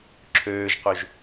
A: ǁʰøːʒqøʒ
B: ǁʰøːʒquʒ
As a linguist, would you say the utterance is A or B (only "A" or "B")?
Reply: A